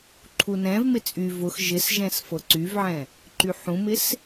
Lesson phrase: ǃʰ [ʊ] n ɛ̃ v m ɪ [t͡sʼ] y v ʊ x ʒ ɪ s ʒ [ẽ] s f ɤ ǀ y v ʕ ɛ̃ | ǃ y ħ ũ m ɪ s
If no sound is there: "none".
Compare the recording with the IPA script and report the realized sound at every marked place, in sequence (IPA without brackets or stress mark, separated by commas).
u, t͡sʼ, ɛ̃